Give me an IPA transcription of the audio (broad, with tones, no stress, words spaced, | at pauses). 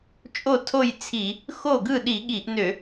t͡ʃʼo˥˨tʰo˥˨jt͡sʰi˧˩˧ | xo˥˨ɡɯ˥˨ ɗi˧˩˧ɠi˧˩˧ʔnø˧˩˧